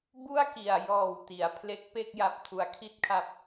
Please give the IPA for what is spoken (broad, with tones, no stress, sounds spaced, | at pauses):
b u˥˩ a̯ k i˨˩ a̯ j ɔː˨˩ w t i˩˦ a̯ pʰ l e˦˥ k̚ p e˥˩ k̚ j a˦˥ p̚ tʰ u˨˩ a̯ kʰ i˥˩ t̚ kʰ a˦˥ p̚